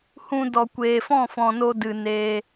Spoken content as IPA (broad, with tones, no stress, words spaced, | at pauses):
hũ˧dɔ˨ kʷeː˨fɔ̃˦˨fɔ̃˨no˧ dɨ˨ neː˧